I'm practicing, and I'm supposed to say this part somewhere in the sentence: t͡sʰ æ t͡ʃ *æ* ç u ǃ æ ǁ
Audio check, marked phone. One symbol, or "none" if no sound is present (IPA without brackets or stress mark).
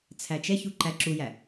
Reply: ɛ